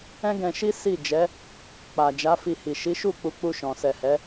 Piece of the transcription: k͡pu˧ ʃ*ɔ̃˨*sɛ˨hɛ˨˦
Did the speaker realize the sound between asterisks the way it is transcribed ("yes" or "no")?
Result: yes